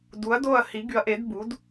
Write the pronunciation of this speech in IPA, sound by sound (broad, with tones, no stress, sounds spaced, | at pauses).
d u˨˥ ɐ̯ d o˥˨ ɐ̯ h i˨˥ ɡ y˨˥ ɐ̯ ʔ e˨˥ d b u˨˥ d